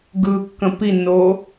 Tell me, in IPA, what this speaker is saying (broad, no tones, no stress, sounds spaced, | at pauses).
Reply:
ɡ ɯ kː ə̃ p i nː o